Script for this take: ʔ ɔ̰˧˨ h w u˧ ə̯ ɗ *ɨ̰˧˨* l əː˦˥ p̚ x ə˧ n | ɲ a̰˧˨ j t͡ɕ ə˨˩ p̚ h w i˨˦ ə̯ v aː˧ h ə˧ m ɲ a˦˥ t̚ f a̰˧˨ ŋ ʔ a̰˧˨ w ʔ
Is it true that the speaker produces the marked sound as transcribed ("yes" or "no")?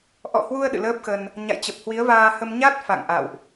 yes